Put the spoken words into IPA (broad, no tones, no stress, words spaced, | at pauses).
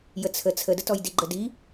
jət͡sʰə t͡sʰədətɔj diɡ͡ǃədi